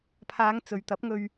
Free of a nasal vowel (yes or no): yes